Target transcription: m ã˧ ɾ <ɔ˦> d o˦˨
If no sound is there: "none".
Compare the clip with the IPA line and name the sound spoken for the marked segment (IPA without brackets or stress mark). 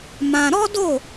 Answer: ɔ˦